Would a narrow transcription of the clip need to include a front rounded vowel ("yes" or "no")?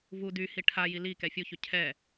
yes